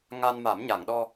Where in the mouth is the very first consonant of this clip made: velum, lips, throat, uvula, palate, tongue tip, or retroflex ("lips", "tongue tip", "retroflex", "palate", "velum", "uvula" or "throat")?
velum